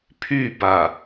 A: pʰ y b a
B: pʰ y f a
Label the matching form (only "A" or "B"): A